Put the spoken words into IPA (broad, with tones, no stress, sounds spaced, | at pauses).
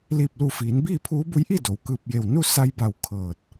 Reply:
l iː˧˩ p̚ l u˧˩ f iː˩˧ n b iː˥˨ pʰ uː˧˥ b u˧˥ j ʔ i˥˨ d o˩ w k ɯː˧˩ p̚ j e˧˩ w n u˥˨ s a˧ j b a˧˩ w kʰ ɤː˧˩ t̚